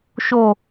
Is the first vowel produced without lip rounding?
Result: no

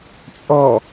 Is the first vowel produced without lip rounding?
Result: no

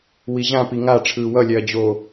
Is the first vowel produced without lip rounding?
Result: yes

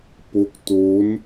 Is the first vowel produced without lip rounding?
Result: no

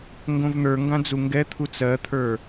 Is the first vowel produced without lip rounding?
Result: no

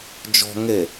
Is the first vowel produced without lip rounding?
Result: no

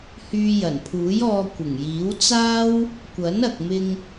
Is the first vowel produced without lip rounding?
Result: no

